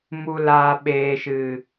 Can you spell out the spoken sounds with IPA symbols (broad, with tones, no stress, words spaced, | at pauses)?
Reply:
mu˨laː˨ ɓeː˨ʃɨ˨